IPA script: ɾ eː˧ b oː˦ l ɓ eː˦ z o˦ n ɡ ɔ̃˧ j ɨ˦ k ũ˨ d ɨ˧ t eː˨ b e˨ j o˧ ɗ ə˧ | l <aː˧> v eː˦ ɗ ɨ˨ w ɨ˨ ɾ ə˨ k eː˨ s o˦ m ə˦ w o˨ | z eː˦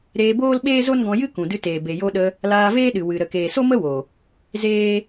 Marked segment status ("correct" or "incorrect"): correct